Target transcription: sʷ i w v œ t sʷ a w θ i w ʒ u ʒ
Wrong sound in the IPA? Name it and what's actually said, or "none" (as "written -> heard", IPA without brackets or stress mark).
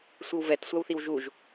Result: œ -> ɛ